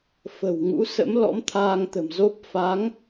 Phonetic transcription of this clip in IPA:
f ə̤˨˩ w ŋ ṵ˧˥ s ə̰˧˥ m l ɔ̰˧˥ m t̪ʰ aː˧ ŋ t̪ ə̤˨˩ m z o˦˥ p̚ f a˨˦ ŋ

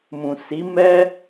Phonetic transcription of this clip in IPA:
m ũ˨ s i˨˦ m ɛ˦

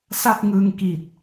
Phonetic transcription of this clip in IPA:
s a˥˩ p̚ ŋ ɯː˧ ŋ k i˨˩ t̚

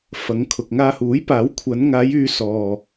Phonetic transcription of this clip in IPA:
f ɐ˨˧ ŋ kʰ ʊ˨ k̚ ŋ aː˧ h uː˨˥ j p aː˨˥ w kʷʰ ɐ˨˧ n ŋ aː˨˧ j yː˨˧ s ɔː˨

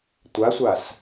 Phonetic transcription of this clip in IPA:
tʷ a sʷ a s

